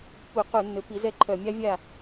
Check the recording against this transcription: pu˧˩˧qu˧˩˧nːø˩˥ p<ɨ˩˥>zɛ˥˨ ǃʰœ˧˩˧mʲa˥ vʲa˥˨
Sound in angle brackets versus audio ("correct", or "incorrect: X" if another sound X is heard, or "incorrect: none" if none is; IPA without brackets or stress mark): incorrect: i˩˥